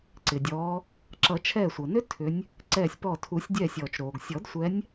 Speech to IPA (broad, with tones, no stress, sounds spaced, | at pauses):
ǀ ɪ˩ dʲ ɔː˨˦ | ǁ ʌ˨˩˦ t͡ʃʰ ɛː˧˩ sʷ ʌ˩ n ʏ˦˥ tʰ ʏ˨˦ nʲ | ǀ ɛː˧˩ sʲ p ɔ˧˩ tʰ u˨˩˦ sʲ dʲ ɛː˧˩ sʲ ɔː˩ t͡ʃ ɾ oː˩ ɡ sʲ ɔ˨˩˦ d sʷ ɛ˨˦ nʲ